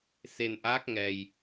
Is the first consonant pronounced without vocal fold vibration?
yes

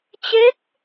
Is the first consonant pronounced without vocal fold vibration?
yes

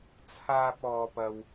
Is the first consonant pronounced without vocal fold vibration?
yes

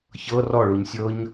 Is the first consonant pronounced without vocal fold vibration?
yes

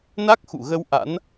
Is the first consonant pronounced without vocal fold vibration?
no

